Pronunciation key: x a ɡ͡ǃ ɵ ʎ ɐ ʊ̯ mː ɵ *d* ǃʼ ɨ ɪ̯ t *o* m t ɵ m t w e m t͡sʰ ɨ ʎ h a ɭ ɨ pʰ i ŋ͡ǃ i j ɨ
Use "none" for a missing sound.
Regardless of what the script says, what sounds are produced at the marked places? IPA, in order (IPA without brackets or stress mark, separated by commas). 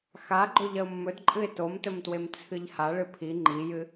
d, o